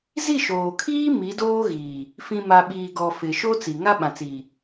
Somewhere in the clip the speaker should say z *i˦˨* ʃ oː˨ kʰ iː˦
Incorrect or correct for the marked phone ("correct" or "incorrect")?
correct